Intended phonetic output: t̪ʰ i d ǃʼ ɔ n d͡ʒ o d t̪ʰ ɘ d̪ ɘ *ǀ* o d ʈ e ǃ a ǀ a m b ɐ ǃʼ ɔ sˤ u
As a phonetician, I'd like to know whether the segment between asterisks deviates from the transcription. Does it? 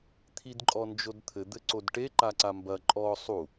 no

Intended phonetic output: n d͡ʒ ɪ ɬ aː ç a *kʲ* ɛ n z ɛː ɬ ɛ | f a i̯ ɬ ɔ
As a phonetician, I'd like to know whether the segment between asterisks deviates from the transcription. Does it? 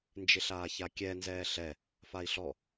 no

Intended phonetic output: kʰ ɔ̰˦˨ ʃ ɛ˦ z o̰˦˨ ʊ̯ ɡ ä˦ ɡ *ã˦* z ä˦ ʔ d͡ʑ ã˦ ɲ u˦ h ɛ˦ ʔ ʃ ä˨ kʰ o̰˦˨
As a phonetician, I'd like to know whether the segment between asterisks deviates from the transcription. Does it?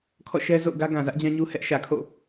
yes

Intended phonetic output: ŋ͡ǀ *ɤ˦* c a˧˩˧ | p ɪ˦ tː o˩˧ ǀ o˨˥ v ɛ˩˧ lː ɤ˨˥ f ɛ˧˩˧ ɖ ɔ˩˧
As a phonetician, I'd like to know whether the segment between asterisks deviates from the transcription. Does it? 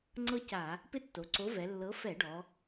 no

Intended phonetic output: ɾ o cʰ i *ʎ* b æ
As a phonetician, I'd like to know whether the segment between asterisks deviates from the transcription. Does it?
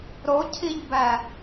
no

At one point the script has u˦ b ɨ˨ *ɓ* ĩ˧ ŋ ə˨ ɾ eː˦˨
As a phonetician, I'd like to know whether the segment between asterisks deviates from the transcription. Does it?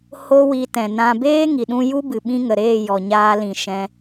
no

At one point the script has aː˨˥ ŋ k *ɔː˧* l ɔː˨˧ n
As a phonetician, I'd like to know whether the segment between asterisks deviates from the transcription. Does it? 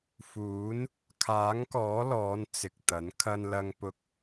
yes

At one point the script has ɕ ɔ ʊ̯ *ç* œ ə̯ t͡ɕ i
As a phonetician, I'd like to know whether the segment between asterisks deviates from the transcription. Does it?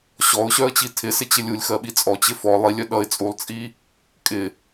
yes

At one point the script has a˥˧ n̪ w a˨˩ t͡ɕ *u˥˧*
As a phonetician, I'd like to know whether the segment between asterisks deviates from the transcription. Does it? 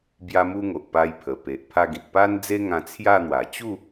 no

